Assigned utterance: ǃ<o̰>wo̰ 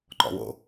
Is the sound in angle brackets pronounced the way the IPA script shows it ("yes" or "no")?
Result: no